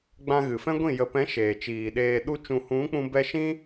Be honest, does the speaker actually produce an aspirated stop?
no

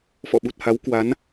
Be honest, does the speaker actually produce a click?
no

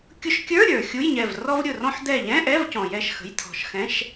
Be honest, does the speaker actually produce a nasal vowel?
yes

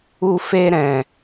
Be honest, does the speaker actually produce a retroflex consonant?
no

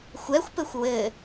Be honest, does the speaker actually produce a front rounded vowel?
no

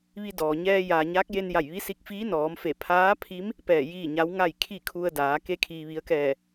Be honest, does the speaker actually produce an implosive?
no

